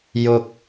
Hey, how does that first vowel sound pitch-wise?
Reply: low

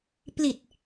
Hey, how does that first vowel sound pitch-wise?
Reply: low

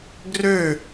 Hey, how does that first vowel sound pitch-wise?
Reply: falling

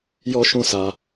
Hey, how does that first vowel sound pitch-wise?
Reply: high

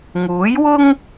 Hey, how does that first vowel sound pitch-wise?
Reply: rising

